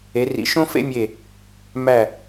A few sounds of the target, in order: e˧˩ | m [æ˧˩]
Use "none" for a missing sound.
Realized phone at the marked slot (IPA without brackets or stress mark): æ˧˩